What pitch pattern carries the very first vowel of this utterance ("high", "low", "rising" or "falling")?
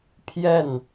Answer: falling